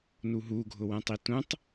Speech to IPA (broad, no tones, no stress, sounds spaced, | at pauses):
n u ɦ u ɡʱ ʊ w ɛ̃ tˤ i t ũ tˤ